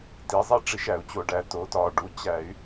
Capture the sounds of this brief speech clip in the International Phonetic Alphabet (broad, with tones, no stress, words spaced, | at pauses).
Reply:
ti˩˧zˤi˦ ʈ͡ʂi˧˩˧ʃæ˧˩˧u̯t͡ɕo˧˩˧ɖæ˩˧ to˩˧tɒ˨˩ ɖu˩˧ t͡ɕæ˧˩˧y̯